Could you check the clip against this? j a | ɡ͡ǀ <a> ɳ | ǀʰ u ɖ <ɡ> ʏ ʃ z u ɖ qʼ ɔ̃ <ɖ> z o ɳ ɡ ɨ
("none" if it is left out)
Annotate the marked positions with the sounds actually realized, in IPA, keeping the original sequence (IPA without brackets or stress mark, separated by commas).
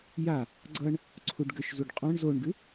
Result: ʌ, ɡ, ɳ